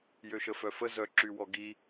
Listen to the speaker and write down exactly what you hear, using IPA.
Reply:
jøʃəfœfə zœ ǁywɔɡi

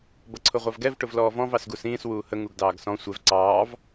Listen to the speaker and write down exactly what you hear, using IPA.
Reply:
bʌǀʰʊʁʷɑvɡɛv ʈʊvlɔːvɔ̃v ɑsɡusĩːs wuːhə ŋuɡdɑːɡsɔ̃ sʷɛv ǀɑːv

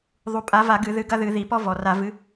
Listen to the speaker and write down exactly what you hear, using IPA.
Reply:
ðˤu˨˩pʼa˨˦va˧˩˧ ɡɨ˧˩˧ðɨ˨˦ ɡɐ˦ðɨ˧˩˧ ði˨˩pɔ˦ vɔ˨˩ra˧˩˧ vɨ˨˦

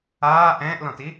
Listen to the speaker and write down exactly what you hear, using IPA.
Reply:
aː ʔɛ̃ːʔlɔ̃ti

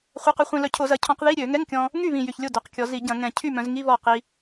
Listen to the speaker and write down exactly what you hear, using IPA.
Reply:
χʷɐ˧˥˧qy˧χʷĩ˧lœ˧ cʰo˧˩˧zɐ˩˧cʰɔ̃˧˩˧q ði˧˥˧ɾʲø˧˩˧ŋɛ˧˥˧ŋkʲɔ̃˧ | ŋy˥˩βĩ˨˩ jy˨˩çlʲo˥˩ dœ˩˧qkʲɔ˩˧zi˧˩˧ɟɐ̃˧˩˧ ŋɛ̃˨˩ cʰy˥˩mœ̃˩˧zŋi˧˥˧ βɔ˥˩ qi˧

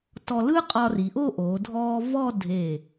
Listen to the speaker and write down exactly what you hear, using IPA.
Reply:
tɔ˧lɯ˥ qʼɒ˧ri˩˧ʔo˥˧ʔoː˩˧ dʱɔː˧ vɔ˥˧ dʱe˧˩

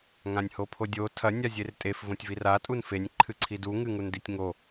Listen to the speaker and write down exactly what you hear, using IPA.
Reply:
ŋãnʲhopʰodʲo tʰɐ nʲazʲertʼef võtʲvira tʼunfenʲ ǃʰɨǀʰidu ŋɨŋunditʲŋo

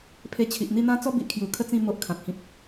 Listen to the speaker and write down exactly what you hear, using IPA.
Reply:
pʰe˧t͡ɕʰi˨ʔn̪i˥˧n̪ã˦ t͡sɔ˦bi˨ʔkʰju˨˩ kʰə˥˧t͡sĩ˥˧ mo˦ʔkʰã˨k̚hĩ˦p̚

